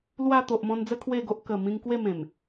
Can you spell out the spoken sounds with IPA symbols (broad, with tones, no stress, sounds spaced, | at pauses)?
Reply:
l w a˥˧ t̪ o˨ ʔ m ɔ̃˧ n d͡z ə˦ kʰ w e˥˧ ɡ o˦ ʔ k ə˨˩ m ĩ˧ ŋ k w e˥˧ m ẽ˨˩ m